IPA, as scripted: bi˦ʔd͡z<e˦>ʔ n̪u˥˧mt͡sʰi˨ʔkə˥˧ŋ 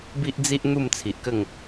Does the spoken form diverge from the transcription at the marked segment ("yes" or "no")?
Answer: yes